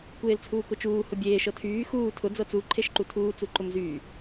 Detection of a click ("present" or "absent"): present